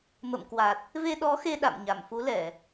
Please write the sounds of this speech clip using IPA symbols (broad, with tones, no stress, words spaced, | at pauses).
mə̰˧˨mkwa˨˩t̚ | ve˧ɗɔ˨˦xe˧ ɗa̰˧˨m ɲa˧˩mfu˨˦lɛ˧˩˨